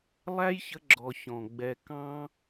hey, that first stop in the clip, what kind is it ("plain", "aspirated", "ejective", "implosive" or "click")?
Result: click